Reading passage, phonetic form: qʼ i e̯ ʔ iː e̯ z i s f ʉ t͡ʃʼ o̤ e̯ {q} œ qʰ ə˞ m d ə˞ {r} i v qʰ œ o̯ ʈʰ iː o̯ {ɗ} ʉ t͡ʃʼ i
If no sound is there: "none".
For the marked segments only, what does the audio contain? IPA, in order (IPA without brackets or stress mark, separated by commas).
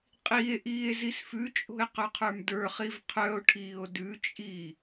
q, χ, d